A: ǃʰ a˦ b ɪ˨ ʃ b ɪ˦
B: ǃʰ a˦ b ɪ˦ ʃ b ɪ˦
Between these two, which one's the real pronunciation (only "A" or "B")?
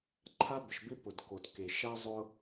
A